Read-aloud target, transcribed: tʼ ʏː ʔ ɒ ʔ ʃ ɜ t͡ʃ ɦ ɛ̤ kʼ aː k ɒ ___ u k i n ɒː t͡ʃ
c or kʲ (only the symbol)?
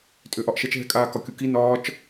kʲ